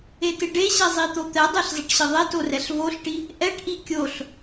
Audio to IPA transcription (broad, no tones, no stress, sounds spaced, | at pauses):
e t ɪ ɖ e ɕ ɛ zˤ i t̪ o t̪ ɛ dˤ ɛ ɬ zˤ ɪ ʈ ɕ ɪ ðˤ e t o r ɛ ɬ v o ɬ ʈ i | ʔ ɛ ʈ ʔ i kʲ o ɬ